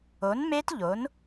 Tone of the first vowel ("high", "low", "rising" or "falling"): rising